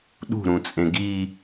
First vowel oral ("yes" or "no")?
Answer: yes